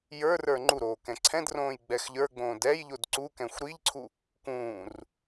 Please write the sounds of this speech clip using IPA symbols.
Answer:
jə˞ rə˞ŋ͡ǃuɾoː kɛ̃ǀʰɛ̃drõːj ɡ͡bɛxʎə˞ɡ͡bõːd ɛj ʎodǀukɛ̃xʷ ɾiʎǀʰu | kũːr

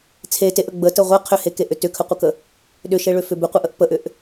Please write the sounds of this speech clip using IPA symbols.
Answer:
t͡sʰe teʔə ɡ͡bətə ʁʷe qʰʏhekeʔʏ tʏkʰəqʷəkə | ɗʏʃeɭʏfʏ bʏqʷɛʔəʔ pəʔʏʔ

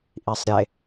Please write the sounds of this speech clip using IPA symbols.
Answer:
ʔisˤɾʲe

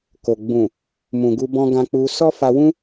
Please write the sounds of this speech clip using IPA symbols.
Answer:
ko˨ ɡ͡bũ˨ | mũ˨ɡu˧ bɔ̃˧ ɡã˧k͡pu˧ sɔ˦fa˧wũ˦

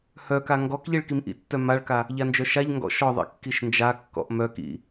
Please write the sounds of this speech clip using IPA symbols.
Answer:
hœka ŋɡɔkʎiɭ kimʔḭtːœ maɭka | ʎand͡ʒœʃaʎŋɡɔ̰ ʃɔðˤḭ kːiʃnd͡ʒakːɔ̰ʔ mœkḭ

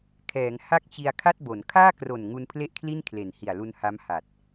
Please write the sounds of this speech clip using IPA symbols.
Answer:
kʰɛː˩˦ŋ ha˥˩k̚t͡ɕi˧a̯ kʰa˥˩t̚bo˩˦n kʰaː˥˩kro˨˩n ŋu˧npʰle˥˩ʔkʰli˥˩n kʰle˨˩nhi˨˩a̯lu˧n ha˦˥mha˨˩t̚

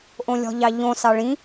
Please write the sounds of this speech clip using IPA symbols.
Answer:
ʔõlʲɔ̤ʎɑʎõ sɑɭĩ

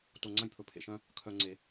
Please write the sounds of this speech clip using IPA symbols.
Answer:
to˧ŋ͡ǀɐ̃˦j pʰɵ˨pʰḛ˨ʃœ̃˧ | kʰœ˧ ŋ͡ǀe˧

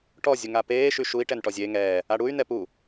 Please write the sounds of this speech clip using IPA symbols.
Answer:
ʈɔ zʲuŋapeː ʃyʃui̯ ʈɛnʈɔzʲe ŋɛː | aɽuy̯ nɛpu

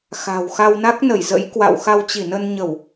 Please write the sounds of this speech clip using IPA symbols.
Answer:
xa̤˨˩wxa˧w na˦˥k̚nə˧˩jzə̰˧˥jkwa̰˧˨w xa˧wt͡ɕi˧˩nə˧nɲə˧˩˨w

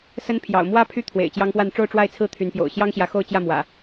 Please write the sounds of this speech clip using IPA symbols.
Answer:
sə˦n pʰjɑ̰˨˩ʊ̯mwä˦ pʰy˦t̪ʰwḛ˨˩ɪ̯ t͡ɕjɑ˦ŋpwa˥˨n ʈ͡ʂo˥˨ʊ̯ʈ͡ʂwa˥˨ɪ̯t͡sʰɹ̩˥˨ t̪ʰy˨˦npjo̰˨˩ʊ̯ ɕjɑ˦ŋɕjä˨˦ xo˥˨ʊ̯t͡ɕjä˥˨mwä̰˨˩

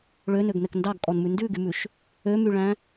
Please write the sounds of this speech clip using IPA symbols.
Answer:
ɭønøɡnɛk ndɑɡkʼɔnmʉ ndʉɡymʉʃ | ømyɭæ̃

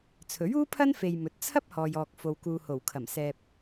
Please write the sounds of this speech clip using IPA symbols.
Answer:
t͡sʰɵ˨˥ɥuː˥pʰɐ˥n fe˧jmɵ˨˥t̚ t͡sʰɐ˥p̚hɔː˨jɔː˨k̚ fo˨wkuː˨ho˨˩wkʰɐ˨˩m sɛː˧p̚

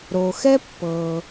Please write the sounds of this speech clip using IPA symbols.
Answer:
ɾo˩xɛ˦ pːɤ˩

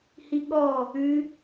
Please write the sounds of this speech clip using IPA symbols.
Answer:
hiɠɔ | ʉ

